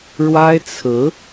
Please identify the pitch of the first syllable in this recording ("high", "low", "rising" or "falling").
high